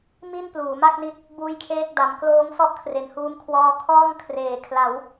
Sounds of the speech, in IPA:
m i˥˩ n p l uː˩˦ m a˥˩ k̚ n i˦˥ t̚ | b uː˥˩ j kʰ eː˥˩ k̚ d a˩˦ m k l oː˦˥ ŋ s ɔ˥˩ ʔ kʰ r e˩˦ n h uː˧ m kʰ w ɔː˧ kʰ ɔː˥˩ ŋ kʰ r eː˩˦ kʰ l a˩˦ w

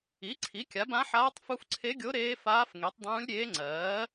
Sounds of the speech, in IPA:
i˩˥ ǀʰ i˩˥ kʲ a˩˥ b ã˧˥ ħ aː˧˥ tˤ f u˧˥ f ǀʰ e˧˥ ɡʲ o˧˥ ɾ eː˧˥ f aː˧˥ f ŋ e˩˥ tˤ dˤ ũː˧˥ lʲ ɾʲ eː˧˥ ŋ͡ǀ ɜː˩˥

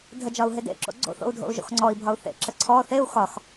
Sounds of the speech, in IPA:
dʱ ə d͡ʒ ɒ u̯ ɦ e d ḛ ǁ o̰ ɡ͡ǀ o̰ θ o̰ u̯ dʱ o̰ u̯ ʒ o̰ x ŋ͡ǀ ɔ i̯ bʱ ɒ u̯ θ ḛ ǁ ə ǀʰ ɔ θ e u̯ x ɒ x

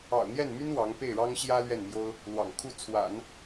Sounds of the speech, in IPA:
ɑ̰˨˩ ʊ̯ n̪ j ɛ˥˩ n m y˥ n w ɑ˧˥ ŋ p e˥˩ ɪ̯ ɻ ɑ˥ ŋ ɕ j ä˥ l ɥ ɛ˥˩ n m j o˥ ʊ̯ | l w ɑ̰˨˩ ŋ kʰ u˥˩ t͡sʰ w a̰˨˩˦ n

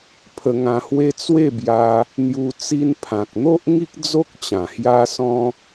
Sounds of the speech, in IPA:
pʰ ə˧ ŋ ã˧ h w e˦ t͡s w e˥˧ b j a˧ | n̪ j u˧ t͡s i˧ n pʰ ã˨ k̚ n̪ o˦ ʔ ŋ i˦ k̚ d͡z o˦ k̚ t͡ɕ ã˨˩ h j a˦ s ɔ̃˦

